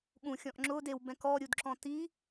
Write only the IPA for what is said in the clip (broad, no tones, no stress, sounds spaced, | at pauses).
ɠ ũ xʲ ɔ̃ ʔ ŋ͡ǁ ʊː d e w b ɛ̃ k ɔ ɾʲ u d ǁ ɔ̃ t i